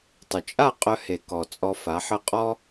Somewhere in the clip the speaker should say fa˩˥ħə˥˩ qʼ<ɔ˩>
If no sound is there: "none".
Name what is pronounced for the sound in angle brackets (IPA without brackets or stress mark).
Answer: ɔ˥